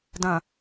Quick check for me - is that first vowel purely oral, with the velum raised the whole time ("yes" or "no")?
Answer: no